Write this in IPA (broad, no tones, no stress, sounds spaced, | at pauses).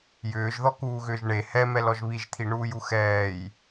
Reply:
j ʏː ʒ ð ɔ k uː ɣ ʏː ʒ ɳ e h ɛ m ɛ l ɔ ʒ β i ʒ t̪ʰ i ɳ uː j u x ɛː j